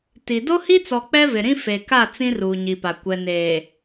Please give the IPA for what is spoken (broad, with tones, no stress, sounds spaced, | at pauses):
t i˨ d o˦ h i˦ t͡s ɔ˨ k͡p ɛ˦ v ɪ˨ ɾ ĩ˦ f e˨ k a˦˨ t͡s ĩ˦ r uː˨ ɲ i˨ p a˨ kʷ ɛ˨ n eː˨